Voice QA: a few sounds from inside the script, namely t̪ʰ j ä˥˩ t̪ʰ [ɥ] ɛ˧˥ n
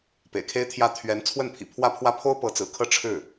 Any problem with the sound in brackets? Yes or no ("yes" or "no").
no